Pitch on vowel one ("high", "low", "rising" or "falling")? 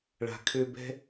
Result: low